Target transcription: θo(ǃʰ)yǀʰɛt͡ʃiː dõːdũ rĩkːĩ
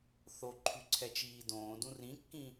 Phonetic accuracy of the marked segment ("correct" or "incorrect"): correct